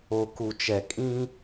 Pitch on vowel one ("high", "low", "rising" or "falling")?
low